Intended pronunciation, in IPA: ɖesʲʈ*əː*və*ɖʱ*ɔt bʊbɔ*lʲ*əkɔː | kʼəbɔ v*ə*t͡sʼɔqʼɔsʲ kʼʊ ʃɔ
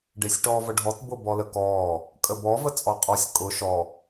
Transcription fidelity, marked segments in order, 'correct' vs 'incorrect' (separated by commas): incorrect, correct, incorrect, correct